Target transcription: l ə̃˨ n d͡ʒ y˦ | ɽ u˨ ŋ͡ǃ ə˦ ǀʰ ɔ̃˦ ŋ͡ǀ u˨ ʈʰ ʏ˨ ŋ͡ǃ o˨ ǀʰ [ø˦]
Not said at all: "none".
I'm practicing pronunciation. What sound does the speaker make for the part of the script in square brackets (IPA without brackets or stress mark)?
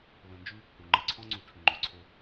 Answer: ø˦